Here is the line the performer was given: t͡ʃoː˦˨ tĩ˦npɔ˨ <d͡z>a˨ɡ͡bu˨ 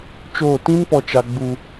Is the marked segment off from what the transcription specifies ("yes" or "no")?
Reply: yes